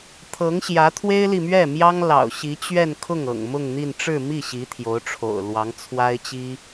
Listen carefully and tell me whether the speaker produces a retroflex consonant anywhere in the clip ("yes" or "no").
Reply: yes